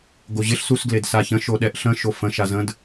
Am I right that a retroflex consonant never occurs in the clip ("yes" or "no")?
yes